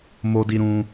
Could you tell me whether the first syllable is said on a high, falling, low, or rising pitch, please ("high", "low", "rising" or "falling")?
high